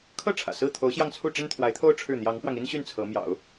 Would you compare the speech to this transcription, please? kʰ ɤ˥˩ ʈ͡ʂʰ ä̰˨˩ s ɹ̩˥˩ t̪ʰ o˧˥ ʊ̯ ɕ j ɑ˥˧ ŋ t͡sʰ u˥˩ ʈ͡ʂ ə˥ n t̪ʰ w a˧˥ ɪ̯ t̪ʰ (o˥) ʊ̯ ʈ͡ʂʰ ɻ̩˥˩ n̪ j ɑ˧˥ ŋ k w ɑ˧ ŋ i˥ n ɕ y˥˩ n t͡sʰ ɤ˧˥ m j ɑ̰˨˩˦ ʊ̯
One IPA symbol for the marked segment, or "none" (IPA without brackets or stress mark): o˥